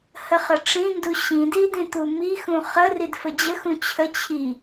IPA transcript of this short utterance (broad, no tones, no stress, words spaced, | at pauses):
həχəʈ͡ʂĩndu ɕĩdidĩ t̪umi xũχə ridfəd͡ʑəxũ t͡ɕʰə t͡ɕʰi